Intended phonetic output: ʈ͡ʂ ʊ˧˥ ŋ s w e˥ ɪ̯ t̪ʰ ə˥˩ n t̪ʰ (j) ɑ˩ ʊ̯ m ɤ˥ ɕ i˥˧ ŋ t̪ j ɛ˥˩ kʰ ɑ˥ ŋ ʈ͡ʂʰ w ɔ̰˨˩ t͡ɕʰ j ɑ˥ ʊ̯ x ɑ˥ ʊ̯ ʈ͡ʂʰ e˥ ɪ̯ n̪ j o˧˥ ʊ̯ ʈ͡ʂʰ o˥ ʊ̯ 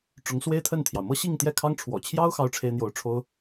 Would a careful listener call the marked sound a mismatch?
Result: no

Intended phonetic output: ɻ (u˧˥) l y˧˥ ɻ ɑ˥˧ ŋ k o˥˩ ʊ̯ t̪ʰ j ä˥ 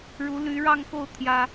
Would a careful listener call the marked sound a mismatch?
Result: no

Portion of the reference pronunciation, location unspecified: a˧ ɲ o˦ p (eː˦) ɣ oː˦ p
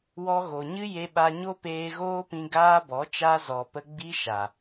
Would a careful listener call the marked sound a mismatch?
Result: yes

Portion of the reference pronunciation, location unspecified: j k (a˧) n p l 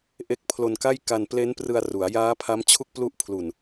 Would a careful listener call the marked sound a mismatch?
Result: no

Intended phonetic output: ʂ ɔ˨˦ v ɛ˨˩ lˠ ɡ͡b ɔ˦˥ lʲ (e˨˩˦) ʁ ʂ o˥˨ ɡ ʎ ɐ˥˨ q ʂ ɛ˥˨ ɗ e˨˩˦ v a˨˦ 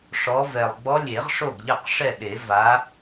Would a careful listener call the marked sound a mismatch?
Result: no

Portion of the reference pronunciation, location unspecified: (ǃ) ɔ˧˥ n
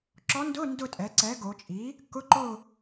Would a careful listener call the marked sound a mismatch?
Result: yes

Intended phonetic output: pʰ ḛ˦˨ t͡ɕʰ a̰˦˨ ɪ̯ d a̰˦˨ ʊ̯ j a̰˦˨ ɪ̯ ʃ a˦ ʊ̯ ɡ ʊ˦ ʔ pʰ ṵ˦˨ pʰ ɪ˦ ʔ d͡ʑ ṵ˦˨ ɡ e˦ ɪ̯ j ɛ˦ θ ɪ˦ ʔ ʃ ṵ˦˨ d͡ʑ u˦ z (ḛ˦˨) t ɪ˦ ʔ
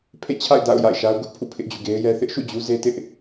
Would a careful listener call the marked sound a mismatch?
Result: yes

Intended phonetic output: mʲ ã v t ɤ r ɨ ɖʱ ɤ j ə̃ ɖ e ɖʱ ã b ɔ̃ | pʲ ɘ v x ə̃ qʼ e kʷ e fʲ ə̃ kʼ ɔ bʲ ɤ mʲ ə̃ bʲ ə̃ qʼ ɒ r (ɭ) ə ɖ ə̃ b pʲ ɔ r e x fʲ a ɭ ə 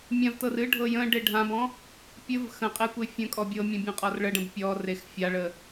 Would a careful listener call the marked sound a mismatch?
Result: no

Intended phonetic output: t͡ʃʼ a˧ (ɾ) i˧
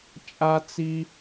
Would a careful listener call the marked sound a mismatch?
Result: yes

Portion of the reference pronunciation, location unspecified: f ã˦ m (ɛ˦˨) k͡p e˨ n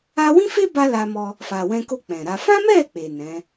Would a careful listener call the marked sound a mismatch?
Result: no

